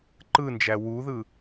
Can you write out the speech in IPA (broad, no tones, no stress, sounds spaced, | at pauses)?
ǃ ɯ n d͡ʒ æ w u ð ɯ